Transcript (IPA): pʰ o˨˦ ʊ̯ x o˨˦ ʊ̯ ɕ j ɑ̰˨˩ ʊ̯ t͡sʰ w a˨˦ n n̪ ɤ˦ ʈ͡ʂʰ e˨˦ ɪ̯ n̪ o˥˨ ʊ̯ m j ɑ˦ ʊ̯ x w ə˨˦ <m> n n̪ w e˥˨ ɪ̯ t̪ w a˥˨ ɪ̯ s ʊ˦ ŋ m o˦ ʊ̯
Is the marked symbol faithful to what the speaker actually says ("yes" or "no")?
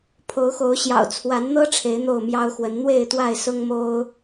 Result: no